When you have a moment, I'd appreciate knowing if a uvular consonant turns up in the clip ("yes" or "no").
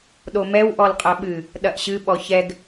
yes